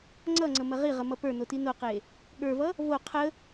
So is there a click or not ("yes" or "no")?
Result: yes